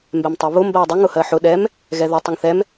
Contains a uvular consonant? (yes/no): no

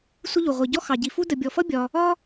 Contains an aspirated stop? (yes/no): no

